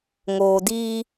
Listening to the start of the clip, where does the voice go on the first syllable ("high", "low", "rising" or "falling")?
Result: low